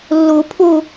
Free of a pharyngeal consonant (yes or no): yes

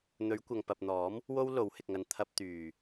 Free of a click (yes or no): yes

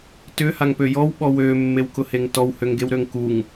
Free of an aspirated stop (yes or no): yes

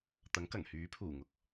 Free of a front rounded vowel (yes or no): no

